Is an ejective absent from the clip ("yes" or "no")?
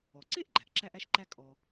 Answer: no